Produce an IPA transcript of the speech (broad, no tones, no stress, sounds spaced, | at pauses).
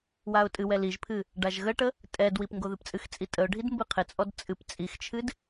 w a ʊ̯ tʼ ɨ w ɛ l i ʒ pʰ ɨ | ɖ a ʒ ɣ ə ʈ ə | tʼ ɛ d w i p ŋ ɡ o ð ɨ p t͡sʼ ɨ x t͡sʼ i tʼ ə ʊ̯ ɖʱ i d m b ɨ qʰ ɪ t͡sʼ ɔ d t͡sʼ ɨ p t͡sʼ i x t͡ʃʰ ɨ d